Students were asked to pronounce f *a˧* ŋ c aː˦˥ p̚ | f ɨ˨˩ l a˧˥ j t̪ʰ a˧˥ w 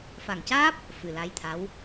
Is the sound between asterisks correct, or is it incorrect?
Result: incorrect